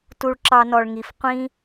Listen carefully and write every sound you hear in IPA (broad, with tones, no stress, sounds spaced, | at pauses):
t u˧ ɭ ǁ ɑ˧ n ɔ˨ ɭ ŋ i˨ f qʷ ĩ˦